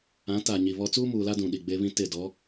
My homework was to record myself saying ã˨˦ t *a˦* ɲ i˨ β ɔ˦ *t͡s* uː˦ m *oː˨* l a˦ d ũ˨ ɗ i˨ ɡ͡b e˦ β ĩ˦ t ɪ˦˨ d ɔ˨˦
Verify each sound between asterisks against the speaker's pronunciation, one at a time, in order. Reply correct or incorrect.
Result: incorrect, correct, incorrect

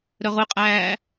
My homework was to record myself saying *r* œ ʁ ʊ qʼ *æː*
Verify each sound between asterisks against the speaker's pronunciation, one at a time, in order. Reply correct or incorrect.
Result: incorrect, correct

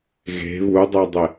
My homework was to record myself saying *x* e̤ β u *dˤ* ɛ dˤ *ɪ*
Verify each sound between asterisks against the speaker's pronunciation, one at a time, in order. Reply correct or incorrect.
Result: incorrect, correct, correct

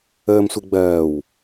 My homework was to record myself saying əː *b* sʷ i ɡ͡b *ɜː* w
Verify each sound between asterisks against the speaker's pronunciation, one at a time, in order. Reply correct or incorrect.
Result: incorrect, correct

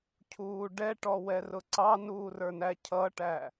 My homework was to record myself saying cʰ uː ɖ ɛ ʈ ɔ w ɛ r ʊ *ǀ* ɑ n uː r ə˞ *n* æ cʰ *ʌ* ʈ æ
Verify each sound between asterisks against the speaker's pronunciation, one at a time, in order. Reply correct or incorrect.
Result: correct, correct, correct

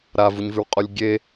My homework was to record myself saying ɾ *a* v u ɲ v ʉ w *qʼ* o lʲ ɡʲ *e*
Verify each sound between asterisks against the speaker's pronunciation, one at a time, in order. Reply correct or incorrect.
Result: correct, correct, correct

